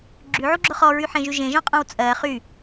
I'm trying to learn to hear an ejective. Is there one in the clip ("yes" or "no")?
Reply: yes